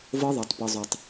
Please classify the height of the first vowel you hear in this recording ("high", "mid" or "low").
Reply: mid